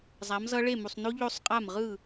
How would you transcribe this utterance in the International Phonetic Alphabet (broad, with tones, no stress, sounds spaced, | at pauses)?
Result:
zˤ a˨˥ m z ʌ˦˥ ɭ e˥˨ m u˨ sˤ n o˦˥ ʎ o˦˥ sˤ qʼ a˥˨ m ʁ ɯ˥˨